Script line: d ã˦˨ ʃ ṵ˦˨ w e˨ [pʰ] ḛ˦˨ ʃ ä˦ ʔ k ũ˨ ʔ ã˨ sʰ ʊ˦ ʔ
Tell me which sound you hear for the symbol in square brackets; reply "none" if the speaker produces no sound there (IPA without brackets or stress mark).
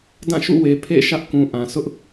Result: pʰ